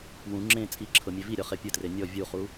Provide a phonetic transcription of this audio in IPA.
wũ ŋ͡ǁẽ t͡sʼi ǁʰɤmʲeviɾʲɔ χepʲɯtre nʲɔ vʲuχu

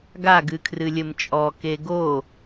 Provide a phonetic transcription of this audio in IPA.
ɡa ɡɨkʰrɨlʲɘmt͡ʃʼɔ keɡo

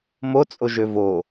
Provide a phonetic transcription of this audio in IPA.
mot͡sʼoʒø vo

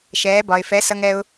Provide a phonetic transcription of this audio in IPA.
ʃɛː˨˦bɒ˨ɪ̯ fɛ˨˦sʌ˧ŋɛ˧ʊ̯

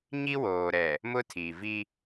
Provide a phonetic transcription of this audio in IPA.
ɲi˦woː˨ɾɛ˨ | mʊ˦tʰi˨vi˦

